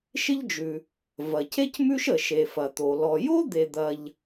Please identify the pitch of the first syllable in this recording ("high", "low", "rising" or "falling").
high